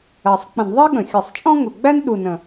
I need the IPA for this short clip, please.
ɜ˨˩ sˤ k͡p ə̃˧˩˧ n ðˤ ɜ˥ ɠ ə̃˨˩ xʲ ʌ˧˩˧ sˤ t͡ʃʼ ɔ̃˥ ŋ ʊ˨˩ ɡ͡b æ˥ n ɗ u˨˩ n ə̃˨˩

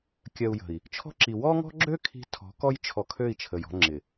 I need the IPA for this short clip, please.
kʲ ɜ˨ u̯ j ə̤˨ i̯ | t͡ʃʰ ɔ̤˦ ǁ i˨ w ɔ˦ ŋ ɔ̤˦ ɡ͡ǁ ø˦ kʰ i̤˦ tʰ ɔ̤˨˦ k ɔ˦ j t͡ʃʰ ɔ˨ kʰ ø˦˨ i̯ t͡ʃʰ ə˨ j ɔ̤˦ ŋ͡ǁ ɪ˨

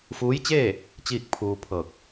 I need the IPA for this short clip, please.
f uː˧˥ j t͡ɕ eː˥˨ | t͡ɕ iː˥˨ k̚ pʰ uː˧ pʰ ɤː˧˩ k̚

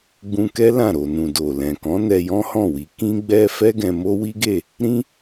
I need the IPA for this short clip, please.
ɡ͡b ũ˧ k ɛ˦ l ã˦˨ ɾ o˨ n ũ˨ d o˨ l ɛ̃˨ k ɔ̃˨˦ n ɛ˧ j ɔ̃˦ h ɔ̃˦˨ w i˨˦ k ĩ˦ ɡ͡b ɛ˦ f ɛ˦ ɡ ɛ̃˧ m o˦ w i˦ ɡ e˦˨ | ɾ ĩ˦

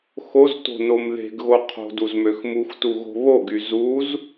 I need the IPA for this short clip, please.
x o z t o̤ n o m ð e̤ ɡ ɣ o qʰ o̤ d u z m ø x m u x t u ɣ o̤ β o ɡ y z u z

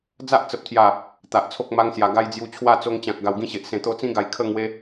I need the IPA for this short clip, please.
d͡z a˦ ʔ t͡s ə˨ p̚ t̪ʰ j a˨˩ | t̪ a˨ ʔ t͡sʰ o˦ k̚ m a˦ ŋ s j a˨˩ ɡ a˦ j d͡z j u˧ t͡ɕʰ w a˥˧ t͡s o˧ ŋ t͡ɕ ã˨ k̚ ɡ a˨˩ w ɡ ĩ˧ ɕ e˨ ʔ s ẽ˨˩ t̪ o˧ t͡s ĩ˦ ɡ a˨˩ j kʰ ə˥˧ ŋ w e˧

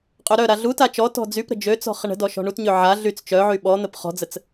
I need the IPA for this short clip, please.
qʼ ø ɾ œ ɾ a ɮ u t a t͡ʃ ɔ t ɔ̤ d͡z y p ɾ ə̤ d͡ʒ ø t͡s ɔ̤ χ ə ɳ ə̤ d ɔ ʃ ɔ̤ ɳ u t ɲ ø ʕ a ɮ y t͡s t͡ʃ œ ʕ y ɓ ɔ n̪ ə p χ ɔ̤ d͡z ə t͡s

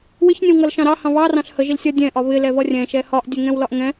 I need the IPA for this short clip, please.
w ɪ ç nʲ ə̃ w ŋ ʌ l ʃ ɑ̃ ɾ ɑ h ɑ̃ β ɑ r ɑ̃ ɬ h ə ʒ i l sʲ ʌ dʲ ɛ̃ ʔ ɒ β ɪ l ɛ v ʌ rʲ ɛ̃ ʃ ɛ h ɒ ʔ dʲ ɛ ŋ ɛ̃ w l ɒ ʔ ŋ ɛ̃

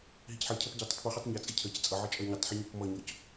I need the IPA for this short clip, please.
ɦ i c ħ ɜ cʰ ʌ p ɟ ʌ tˤ ə tˤ p u χ ɔ tˤ ɲ ʌ t͡sʼ ɪ cʰ ɜ c t͡sʼ ʌ ʕ ə t͡ʃʼ ɜ ɲ ɪ tˤ ħ ɪ ɲ ɪ p m ʌ ɲ ɔ c

